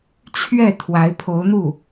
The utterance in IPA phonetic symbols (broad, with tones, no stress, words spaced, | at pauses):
t͡ɕʰɥɛ˥˩ t̪ʰwa˧˥ɪ̯pʰo˧˥ʊ̯n̪u˥˩